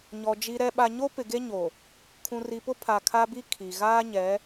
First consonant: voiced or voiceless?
voiced